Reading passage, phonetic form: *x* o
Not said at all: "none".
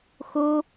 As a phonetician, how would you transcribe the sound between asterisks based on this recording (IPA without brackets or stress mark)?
x